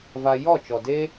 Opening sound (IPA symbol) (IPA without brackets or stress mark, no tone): v